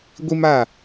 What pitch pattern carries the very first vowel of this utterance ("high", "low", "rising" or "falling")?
high